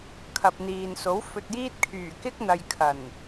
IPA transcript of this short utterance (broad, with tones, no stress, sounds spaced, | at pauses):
kʰ ɐ˨ p̚ n̪ iː˨ n s o˨˥ w f ɵ˧ t̚ j iː˥ t̚ kʰ yː˨˩ k ɪ˥ k̚ n̪ ɐ˨ j kʰ ɐ˨˩ n